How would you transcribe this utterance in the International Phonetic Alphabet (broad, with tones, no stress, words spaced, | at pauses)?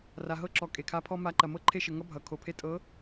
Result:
ra˨ɦɤ˥ǁɔ˨ kʼe˨kʰa˧˥pʰɔ˥ ma˧˥ǃɐ˨ mɤ˥ǃʰe˥ʃə˨ ŋʌ˥bʱʌ˨ kʰo˨pʰe˥ tʼɤ˧˥